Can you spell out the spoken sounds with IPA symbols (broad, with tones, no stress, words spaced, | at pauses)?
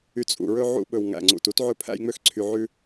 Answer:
y˨ t͡sʼṵ˨ɹɵ˧ ʕṵ˧ɓɵ˨wŋæ̰˨ŋ͡ǀṵ˨t u˧tʕɵ˧pʰæ̰˧jŋ͡mø˧x ǀʰy˧ʕʉ˦